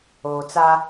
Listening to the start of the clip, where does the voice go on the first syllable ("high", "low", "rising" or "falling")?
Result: low